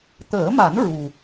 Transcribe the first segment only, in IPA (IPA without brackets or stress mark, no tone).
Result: t̪